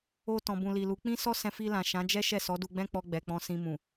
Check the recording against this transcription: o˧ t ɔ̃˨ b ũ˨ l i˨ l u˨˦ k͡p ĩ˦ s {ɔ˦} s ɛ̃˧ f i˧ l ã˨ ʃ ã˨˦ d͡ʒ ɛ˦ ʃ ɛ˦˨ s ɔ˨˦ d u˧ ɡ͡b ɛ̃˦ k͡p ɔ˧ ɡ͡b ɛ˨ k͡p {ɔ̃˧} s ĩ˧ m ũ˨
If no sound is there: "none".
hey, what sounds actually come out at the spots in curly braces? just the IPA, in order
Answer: ɔ˦, ɔ̃˧

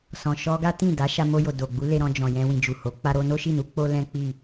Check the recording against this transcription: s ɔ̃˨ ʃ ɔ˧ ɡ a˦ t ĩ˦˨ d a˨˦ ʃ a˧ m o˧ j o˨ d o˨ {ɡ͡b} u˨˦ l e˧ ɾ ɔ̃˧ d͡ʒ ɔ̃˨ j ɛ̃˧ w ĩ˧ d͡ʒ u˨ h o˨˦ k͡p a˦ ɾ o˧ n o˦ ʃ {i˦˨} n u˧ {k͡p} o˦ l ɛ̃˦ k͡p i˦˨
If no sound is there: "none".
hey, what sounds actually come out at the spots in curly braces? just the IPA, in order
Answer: ɡ͡b, i˦˨, k͡p

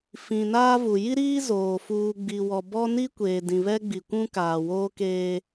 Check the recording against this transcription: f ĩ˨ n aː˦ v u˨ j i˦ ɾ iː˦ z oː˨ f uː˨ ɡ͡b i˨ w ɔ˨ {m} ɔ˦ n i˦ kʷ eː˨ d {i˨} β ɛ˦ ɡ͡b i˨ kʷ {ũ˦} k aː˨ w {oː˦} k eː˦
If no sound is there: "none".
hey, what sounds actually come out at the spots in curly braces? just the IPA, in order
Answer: b, ĩ˨, ũ˦, oː˦

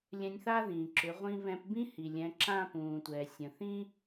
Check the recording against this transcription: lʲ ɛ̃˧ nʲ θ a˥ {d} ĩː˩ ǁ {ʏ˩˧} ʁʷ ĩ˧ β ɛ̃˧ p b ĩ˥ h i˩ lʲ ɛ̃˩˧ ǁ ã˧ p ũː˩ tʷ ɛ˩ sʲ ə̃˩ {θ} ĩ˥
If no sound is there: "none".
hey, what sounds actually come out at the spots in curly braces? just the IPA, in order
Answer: ð, ʏ˩˧, θ

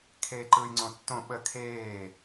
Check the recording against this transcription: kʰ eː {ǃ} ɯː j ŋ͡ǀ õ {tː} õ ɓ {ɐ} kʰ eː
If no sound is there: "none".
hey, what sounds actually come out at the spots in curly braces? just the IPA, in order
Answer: ǃ, tː, ə

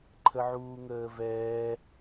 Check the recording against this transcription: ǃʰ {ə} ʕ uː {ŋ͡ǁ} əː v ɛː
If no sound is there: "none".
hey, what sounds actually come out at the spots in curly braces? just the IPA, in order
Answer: ə, ŋ

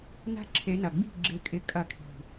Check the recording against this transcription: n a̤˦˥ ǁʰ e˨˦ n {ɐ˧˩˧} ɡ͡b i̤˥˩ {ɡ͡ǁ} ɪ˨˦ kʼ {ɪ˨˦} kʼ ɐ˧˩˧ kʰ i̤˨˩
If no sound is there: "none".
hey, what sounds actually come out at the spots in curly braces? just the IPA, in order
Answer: ɐ˨˩, ɡ͡ǁ, ɪ˨˦

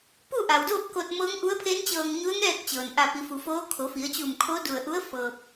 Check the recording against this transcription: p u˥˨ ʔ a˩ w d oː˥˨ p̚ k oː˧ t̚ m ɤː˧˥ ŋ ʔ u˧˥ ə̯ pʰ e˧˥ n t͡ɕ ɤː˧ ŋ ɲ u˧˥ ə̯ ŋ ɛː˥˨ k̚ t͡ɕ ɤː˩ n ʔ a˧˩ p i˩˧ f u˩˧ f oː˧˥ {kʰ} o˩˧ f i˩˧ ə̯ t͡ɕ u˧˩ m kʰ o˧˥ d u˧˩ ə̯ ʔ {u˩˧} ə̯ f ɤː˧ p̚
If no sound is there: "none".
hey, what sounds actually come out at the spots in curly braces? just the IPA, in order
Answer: kʰ, u˧˥

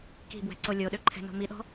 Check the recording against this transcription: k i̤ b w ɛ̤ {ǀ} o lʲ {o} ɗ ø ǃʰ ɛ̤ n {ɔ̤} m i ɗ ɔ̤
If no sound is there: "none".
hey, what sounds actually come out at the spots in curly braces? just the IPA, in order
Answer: ǀ, o, o̤

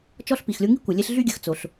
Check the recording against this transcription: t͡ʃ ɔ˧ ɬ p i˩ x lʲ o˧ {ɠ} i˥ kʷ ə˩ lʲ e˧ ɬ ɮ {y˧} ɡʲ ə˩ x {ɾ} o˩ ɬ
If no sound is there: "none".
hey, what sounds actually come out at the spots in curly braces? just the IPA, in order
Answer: ŋ, y˧, t͡s

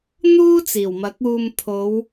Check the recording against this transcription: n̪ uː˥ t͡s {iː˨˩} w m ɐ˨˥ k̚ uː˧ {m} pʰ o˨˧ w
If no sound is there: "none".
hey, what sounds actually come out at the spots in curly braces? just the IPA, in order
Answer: iː˨˩, m

